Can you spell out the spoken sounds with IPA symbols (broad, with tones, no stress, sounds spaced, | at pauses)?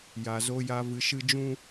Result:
j a˨ z o˧ j a˧ v ɨ˧ ʃ ɨ˦ d͡ʒ ũ˦